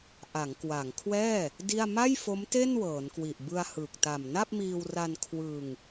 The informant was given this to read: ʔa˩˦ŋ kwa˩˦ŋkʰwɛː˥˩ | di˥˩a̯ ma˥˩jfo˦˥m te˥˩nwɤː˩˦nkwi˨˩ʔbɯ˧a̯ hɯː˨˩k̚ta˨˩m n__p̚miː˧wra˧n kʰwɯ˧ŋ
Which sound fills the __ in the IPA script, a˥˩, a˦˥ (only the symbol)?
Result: a˥˩